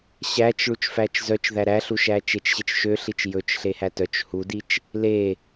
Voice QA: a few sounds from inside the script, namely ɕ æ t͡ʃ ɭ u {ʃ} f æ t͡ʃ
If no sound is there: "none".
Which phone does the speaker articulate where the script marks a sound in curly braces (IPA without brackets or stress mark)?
t͡ʃ